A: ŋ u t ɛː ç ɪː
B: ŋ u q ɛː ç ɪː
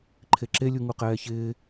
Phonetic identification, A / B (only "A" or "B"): B